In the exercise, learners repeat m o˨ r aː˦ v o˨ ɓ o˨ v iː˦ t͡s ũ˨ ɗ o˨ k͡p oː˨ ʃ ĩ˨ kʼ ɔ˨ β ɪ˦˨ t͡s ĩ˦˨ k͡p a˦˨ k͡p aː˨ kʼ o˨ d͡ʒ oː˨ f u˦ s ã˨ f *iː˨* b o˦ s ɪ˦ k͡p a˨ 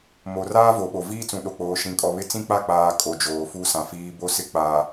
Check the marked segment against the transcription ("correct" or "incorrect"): correct